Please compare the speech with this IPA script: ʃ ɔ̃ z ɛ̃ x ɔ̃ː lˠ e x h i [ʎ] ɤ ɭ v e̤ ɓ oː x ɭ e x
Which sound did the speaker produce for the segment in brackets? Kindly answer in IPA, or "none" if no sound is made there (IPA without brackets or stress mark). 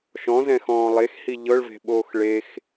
ʎ